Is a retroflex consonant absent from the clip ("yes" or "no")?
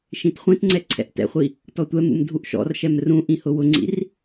yes